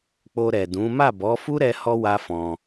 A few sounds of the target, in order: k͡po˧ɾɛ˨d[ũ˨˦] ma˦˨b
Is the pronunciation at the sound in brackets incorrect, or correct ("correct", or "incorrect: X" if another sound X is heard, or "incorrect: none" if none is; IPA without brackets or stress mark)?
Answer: correct